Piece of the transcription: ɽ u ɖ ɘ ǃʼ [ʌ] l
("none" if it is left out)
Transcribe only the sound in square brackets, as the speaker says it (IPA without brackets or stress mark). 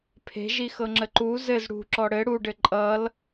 ʌ